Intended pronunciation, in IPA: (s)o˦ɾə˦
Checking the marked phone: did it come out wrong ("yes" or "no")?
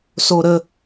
no